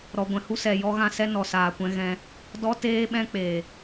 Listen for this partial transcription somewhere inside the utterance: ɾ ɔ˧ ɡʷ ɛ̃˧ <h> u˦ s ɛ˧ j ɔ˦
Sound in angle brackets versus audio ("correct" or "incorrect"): correct